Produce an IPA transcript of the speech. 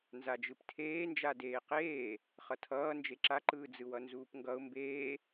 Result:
nzad͡ʒɯptʰeːnd͡ʒa deːqeː | χʌtʰʌː nd͡ʒeǁaǃɯː d͡zɯwʌnzuːpŋɡʌʊ̯ mbeː

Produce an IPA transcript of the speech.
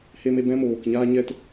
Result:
he˧me˧ bɛ̃˦moː˨kɲaː˦ ɲɛ˧t

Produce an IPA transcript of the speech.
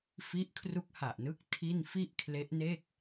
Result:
fi˦˥ʔ kʰru˦˥k̚ha˨˩ʔnɯ˦˥k̚ tʰi˥˩n fi˥˩ʔkʰle˦˥ʔne˥˩k̚

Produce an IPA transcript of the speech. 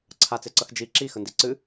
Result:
ǀʰat͡seǀʌx d͡ʒi ǁixəndi ǀɨ

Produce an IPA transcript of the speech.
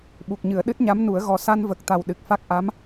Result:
ɓu˨˩k̚ɲɨ˨˩˨ə̯ ɗɨ˦˥t̚ɲa˧˥mnu˨˩˦ə̯ ɣɔ˨˩sa˧nvə˨˩k̚t̪a˨˩w ɗɨ˨˩k̚fa˦˥k̚ ʔa˧˥m

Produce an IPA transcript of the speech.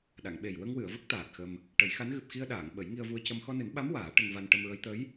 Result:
ɗa˨˩˨ŋɓe˨˩j wə˧ŋwɨ˨˩˨ə̯ və˦˥k̚ t̪aː˨˩t̚xə˧m | ʈə˨˩˦jxa˧˥n ɣɨ˨˩p̚xi˧ə̯ɗaː˨˩˨ŋ ɓə˨˩˦jŋi˧ə̯vu˧ə̯cə˧m xɔ˧nɨ˨˩˦nɓa˧˥m waː˨˩˦ʈə˧ŋva˧n ʈə˧mɹə˧˥j t̪ə˧˥j

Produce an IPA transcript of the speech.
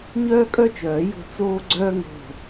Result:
ɲœː˥kʼœ˥t͡ʃœː˨˩˦jo̤˦˨ t͡soː˥ɡ͡ǀœː˥ŋo̤˦˨

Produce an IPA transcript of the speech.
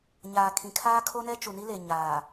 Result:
ɲaː˨kʰĩ˨ kʰaː˦kʰo˦nɛ˦ t͡ʃu˨ni˦le˨ ɲaː˨

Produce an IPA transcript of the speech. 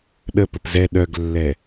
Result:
ɗəpəp zɛ ɗœɡlːɛ

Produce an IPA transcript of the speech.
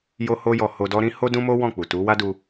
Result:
jo˦ho˦jɔ˧ ho˧dɔ˦ɾĩ˦ ho˦dũ˦mo˦ wɔ̃˦˨k͡pu˨ tu˨˦wa˦du˧

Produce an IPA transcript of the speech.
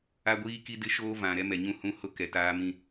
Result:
a˦ɡʷiː˦ki˦ dɪ˦ʃoː˦vã˨ ɾɛ˦mɛ˨ɲũ˦hũ˦ hʊ˦kɛ˨taː˦ mĩ˦

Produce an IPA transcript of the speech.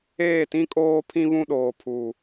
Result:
eː˦˨tĩ˦ kʼoː˦pʰĩ˦βũ˦ɗoː˨ pʰuː˨

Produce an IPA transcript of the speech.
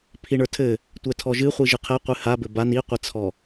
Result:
pʰiɳə˞tʰɘ | tʷɛtʰɔʒɨ χʷiʒɨqʰɛqʷɨ ha bɘban iqʷɛt͡sʰɔ

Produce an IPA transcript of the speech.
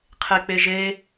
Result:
qʰek͡peʒe

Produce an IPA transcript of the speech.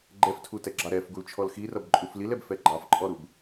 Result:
ɡ͡ǃɛftʰutɛɡ͡ǁɑ ɾɛfɡult͡ʃʰɔl xirʌb ǃʼuflilɛb fɛɡ͡ǃɑfǃʼɔɾub

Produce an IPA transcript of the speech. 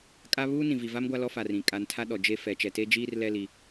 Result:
kʼa˦βuː˦ nĩ˨vi˨va˦m ɡʷa˦lɔ˦fa˨rĩ˨ kʼa˨ntʰa˦ ɗɔ˨d͡ʒe˦ fɛ˨ t͡ʃɛ˨te˦d͡ʒiː˦r lɛ˦ li˦

